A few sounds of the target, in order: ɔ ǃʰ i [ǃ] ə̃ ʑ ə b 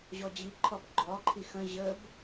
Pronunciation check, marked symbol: incorrect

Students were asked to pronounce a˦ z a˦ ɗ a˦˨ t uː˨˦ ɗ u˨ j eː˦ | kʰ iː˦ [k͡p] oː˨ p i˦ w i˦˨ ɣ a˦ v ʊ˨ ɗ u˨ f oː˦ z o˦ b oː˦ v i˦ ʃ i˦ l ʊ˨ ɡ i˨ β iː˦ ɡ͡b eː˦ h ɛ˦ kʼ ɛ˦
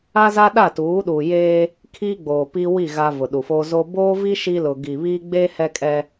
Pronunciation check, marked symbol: incorrect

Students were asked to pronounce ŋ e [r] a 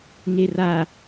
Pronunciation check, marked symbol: correct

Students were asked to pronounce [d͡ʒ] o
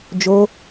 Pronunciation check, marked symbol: correct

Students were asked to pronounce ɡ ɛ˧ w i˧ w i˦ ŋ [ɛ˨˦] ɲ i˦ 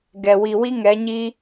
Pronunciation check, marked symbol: correct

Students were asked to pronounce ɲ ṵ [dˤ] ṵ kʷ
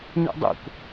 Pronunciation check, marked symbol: correct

